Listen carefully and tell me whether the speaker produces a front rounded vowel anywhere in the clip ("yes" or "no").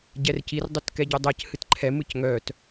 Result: yes